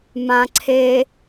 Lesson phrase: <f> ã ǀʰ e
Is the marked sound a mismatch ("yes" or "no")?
yes